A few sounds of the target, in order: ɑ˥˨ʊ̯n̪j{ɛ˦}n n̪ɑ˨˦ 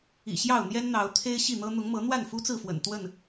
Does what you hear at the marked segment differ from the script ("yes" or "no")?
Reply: no